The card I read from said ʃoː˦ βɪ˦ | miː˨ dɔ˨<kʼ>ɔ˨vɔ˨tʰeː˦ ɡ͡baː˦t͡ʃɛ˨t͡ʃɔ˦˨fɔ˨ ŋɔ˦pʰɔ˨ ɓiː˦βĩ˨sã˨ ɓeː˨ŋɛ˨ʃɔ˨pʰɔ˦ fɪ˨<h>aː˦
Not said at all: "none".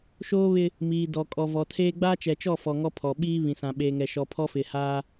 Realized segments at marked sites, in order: kʼ, h

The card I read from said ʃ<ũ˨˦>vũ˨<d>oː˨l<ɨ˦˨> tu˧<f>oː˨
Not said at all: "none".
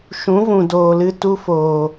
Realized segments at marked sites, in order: ũ˨˦, d, ɨ˧, f

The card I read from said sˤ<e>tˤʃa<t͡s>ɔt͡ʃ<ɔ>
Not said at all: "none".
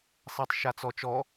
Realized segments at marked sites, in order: ɛ, t͡s, ɔ

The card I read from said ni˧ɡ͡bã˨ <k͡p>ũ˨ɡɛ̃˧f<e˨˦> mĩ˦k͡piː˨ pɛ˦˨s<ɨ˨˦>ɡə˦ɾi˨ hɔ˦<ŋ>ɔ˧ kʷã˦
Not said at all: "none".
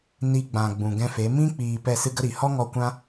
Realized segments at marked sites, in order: ɡ͡b, e˨˦, ɨ˦, ŋ

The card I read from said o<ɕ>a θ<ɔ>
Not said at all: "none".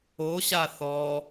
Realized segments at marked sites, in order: ɕ, ɔ

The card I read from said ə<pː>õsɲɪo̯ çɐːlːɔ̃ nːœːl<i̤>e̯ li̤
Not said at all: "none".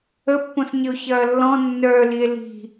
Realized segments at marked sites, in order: pː, i

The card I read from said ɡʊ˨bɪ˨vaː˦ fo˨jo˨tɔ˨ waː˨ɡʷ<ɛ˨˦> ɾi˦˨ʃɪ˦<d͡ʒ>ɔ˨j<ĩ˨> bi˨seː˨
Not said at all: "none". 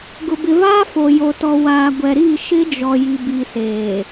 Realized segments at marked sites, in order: ɛ˨, d͡ʒ, i˨

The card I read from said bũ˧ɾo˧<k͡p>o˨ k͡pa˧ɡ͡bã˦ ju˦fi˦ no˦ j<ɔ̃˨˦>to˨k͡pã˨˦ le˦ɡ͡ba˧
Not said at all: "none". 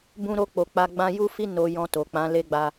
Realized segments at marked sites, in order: k͡p, ɔ̃˧

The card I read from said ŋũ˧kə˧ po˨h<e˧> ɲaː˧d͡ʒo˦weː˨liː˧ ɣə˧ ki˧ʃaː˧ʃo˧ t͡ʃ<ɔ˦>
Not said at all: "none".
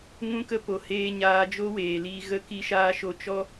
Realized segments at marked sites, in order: eː˧, ɔ˦

